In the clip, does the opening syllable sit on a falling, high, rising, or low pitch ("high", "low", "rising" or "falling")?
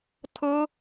high